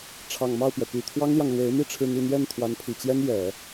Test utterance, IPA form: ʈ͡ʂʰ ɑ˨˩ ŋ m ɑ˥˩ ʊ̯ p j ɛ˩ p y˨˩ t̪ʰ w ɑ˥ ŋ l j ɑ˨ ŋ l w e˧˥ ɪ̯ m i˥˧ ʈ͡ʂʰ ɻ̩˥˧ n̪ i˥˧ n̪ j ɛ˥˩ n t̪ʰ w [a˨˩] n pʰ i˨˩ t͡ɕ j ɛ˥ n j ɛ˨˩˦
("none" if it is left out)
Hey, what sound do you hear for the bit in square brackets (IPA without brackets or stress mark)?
a˧˥